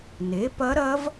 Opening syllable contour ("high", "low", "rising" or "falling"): rising